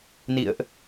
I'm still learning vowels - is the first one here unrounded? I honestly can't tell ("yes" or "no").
yes